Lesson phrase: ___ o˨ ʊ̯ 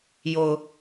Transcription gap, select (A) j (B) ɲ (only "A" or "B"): A